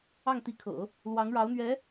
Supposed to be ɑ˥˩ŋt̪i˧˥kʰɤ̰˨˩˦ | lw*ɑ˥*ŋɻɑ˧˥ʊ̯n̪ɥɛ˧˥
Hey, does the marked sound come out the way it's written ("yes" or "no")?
no